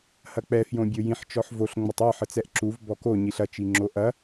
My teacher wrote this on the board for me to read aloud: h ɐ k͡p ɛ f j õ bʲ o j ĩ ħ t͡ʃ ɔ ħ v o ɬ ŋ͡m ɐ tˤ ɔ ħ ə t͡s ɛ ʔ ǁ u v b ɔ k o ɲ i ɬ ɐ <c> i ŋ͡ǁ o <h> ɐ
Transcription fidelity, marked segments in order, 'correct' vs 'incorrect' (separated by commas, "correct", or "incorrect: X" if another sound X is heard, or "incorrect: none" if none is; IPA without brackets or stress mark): incorrect: t͡ʃ, incorrect: ʔ